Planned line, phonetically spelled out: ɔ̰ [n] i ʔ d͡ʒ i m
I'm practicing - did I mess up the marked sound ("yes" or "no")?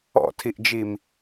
yes